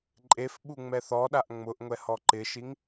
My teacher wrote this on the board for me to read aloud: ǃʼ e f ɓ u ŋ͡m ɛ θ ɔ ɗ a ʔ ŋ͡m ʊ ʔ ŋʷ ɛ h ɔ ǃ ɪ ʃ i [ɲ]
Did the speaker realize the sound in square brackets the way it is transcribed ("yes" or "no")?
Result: no